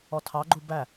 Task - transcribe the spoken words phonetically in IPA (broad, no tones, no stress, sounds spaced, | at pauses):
ɔ tʰ ɑ ɡ͡ǃ u b æ